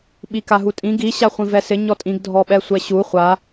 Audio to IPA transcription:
ɓ i k a ɦ u tʼ ĩ ɡ i ɕ a χʷ ĩ v ɛ s ɪ ɲ ɔ tʼ ĩ ɡ dʱ ɔ ɓ ɛ sʷ ɛ ɕ u χʷ a

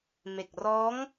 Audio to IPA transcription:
m e˨˩ k̚ r ɔː˦˥ ŋ

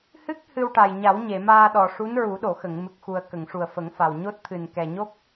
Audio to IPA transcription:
h ɨ˦˥ k̚ h ɨ˧ w ʈ a˨˩ j ɲ a˨˩˦ w ɲ e˨˩˨ m aː˧ ɗ ɔ˨˩ ʂ u˧˥ n ɹ u˨˩˦ ɗ o˨˩˨ x ə˨˩˨ ŋ m ɨ˨˩ k̚ x u˨˩ ə̯ k ə˨˩˨ ŋ ʂ u˨˩ ə̯ f ə˨˩˦ ŋ f a˨˩ w ɲ o˦˥ t̚ t̪ʰ ɨ˨˩ n k ɛ˨˩ ɲ o˦˥ k̚

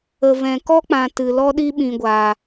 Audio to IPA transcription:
ə˨ v ɛ̃˨ k ɔ˦ k͡p ã˨ t ɨ˨ l ɔ˦ ɗ i˦ ɓ ĩ˨ ɡʷ a˨

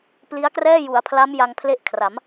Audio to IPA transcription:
p l i˦˥ a̯ k r ɛː˥˩ j u˩˦ a̯ pʰ l a˦˥ m j a˧ ŋ pʰ l e˥˩ ʔ kʰ r a˩˦ m

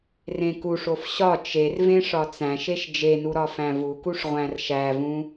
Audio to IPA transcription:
r ẽ k u ʂ o f ɕ ɒ t͡ʃ e r v ẽ ʂ ɒ t͡s æ̃ ʃ e ʃ d͡ʒ e n u ɾ ɒ f æ̃ v u k u ʂ ʁʷ æ̃ r ʃ æ v ũ

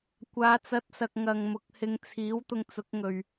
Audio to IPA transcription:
kʷ aː˨˧ t͡s ɐ˨˥ t̚ s ɐ˨ k̚ ŋ ɐ˨ ŋ m ʊ˨ k̚ h ɪ˧ ŋ t͡sʰ iː˨˥ w t̪ ʊ˧ ŋ t͡s ʊ˨˥ k̚ ŋ ɵ˨ ɥ

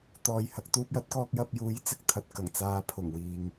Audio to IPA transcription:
t̪ ɔː˨ j h ɐ˧ k̚ t̪ uː˧ p̚ j ɐ˨˥ t̚ k ɔː˧ k̚ j ɐ˧ p̚ j uː˨˥ j t͡s ɪ˨ k̚ t̪ʰ ɐ˨ t̚ k ɐ˨˩ ŋ t͡s aː˨˧ pʰ ʊ˨˩ ŋ w iː˨ ŋ

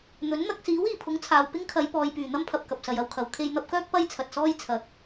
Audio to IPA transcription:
n̪ ɵ˨˥ n n̪ ɐ˧ k̚ s iː˨˥ w iː˨˩ pʰ ʊ˨˥ ŋ t͡sʰ aː˨ w p ɪ˥ ŋ kʰ ɐ˨˧ j p ɔː˨ j p yː˨˩ n̪ ɐ˥ m pʰ ɐ˨ p̚ k ɐ˨ p̚ s ɐ˨ j ɐ˧ w kʰ ɐ˨ w kʰ e˧ j n̪ ɐ˧ p̚ k œː˥ k̚ p ɐ˥ j t͡sʰ ɐ˨ t̚ s ɔː˥ j t͡sʰ ɐ˨˥ k̚

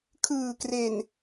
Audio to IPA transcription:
kʰ ɯː˨˩ k r e˨˩ n

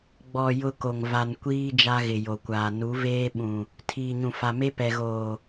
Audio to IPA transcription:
ɡ͡b ɔ˨ j ʊ˦ k o˨ ŋ v a˨ n kʷ iː˦ d͡ʒ a˦ ɣ ɪ˨ j o˨ kʷ aː˨ n u˨˦ v eː˦ ɓ ũ˨ | tʰ iː˨ ɲ ũ˨ f a˨ m e˦ p ɛ˨ ɣ oː˨

